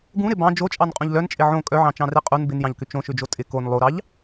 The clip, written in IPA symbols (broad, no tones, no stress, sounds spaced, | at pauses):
ɡ ũ ɾ ɪ b ɑ̃ d͡ʒ o t͡ʃʼ ɑ n qʼ ũ ʎ l œ n t͡ʃʼ ɪ ʕ õ kʼ œ ʕ ɑ̃ t͡ʃ ɑ̃ r e qʼ u n b ɪ n j ɑ̃ ʎ k ʏ t͡ʃ õ ʃ ʏ d͡ʒ o tʼ ɪ k o n lˠ o ɾ ɑ ʎ